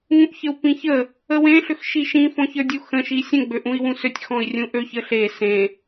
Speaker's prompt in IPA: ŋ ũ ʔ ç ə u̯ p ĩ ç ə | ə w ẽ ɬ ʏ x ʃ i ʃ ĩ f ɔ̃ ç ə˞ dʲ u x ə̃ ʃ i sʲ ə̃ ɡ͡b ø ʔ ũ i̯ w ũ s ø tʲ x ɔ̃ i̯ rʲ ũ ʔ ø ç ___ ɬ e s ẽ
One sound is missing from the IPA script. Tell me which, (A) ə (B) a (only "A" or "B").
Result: A